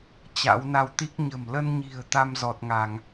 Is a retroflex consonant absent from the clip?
yes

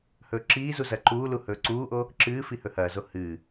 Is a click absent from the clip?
no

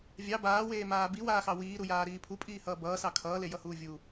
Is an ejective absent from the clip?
no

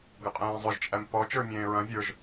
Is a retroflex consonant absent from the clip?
yes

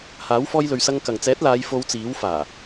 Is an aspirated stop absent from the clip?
yes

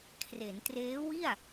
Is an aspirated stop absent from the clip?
no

